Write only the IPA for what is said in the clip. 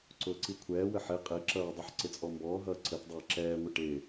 ǀʊːǀikʷʰɛːwə ħɪ qʼɪ ǁʌːdˤʌħ ǀɪt͡sʼɔmbɔːɦʌː ǀətdˤɛː ǁɛːŋʷɪ ʈɪ

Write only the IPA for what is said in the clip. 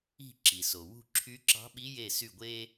i̤˦˨ ǁi˩so˩ wṳ˦˨ ǁʰy˧˥ǁɑ̤˧˥ɓi˧˥ je˦˨sy˦˨ɡʷeː˥

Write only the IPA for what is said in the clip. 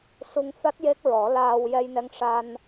su˧ŋfa˦˥t̚ je˦˥k̚ɹɔ˨˩˦laː˧w jɛ˧jnɛ˧ŋʂa˧n

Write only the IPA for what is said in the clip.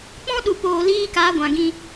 k͡pɔ̃˦ɗu˨poː˨liː˧ ka˨˦ɡʷã˨ɡĩ˧

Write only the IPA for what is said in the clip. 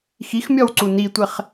xixmʲɔw ǀunitʷeχ

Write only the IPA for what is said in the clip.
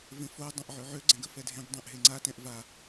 vẽfo dˤɛ̃ʔʕøʕø ɡ͡ǀɛ̃ɡəfɛdʱẽɡ dˤɛ̃ʔɦeŋ͡ǀa tɛ̃ʔva

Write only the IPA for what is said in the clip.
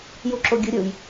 juǁoɡʲɯɾʲɯj

